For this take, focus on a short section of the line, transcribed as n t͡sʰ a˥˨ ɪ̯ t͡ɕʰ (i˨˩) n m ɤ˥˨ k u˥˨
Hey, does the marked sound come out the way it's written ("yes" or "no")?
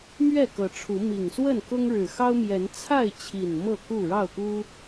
yes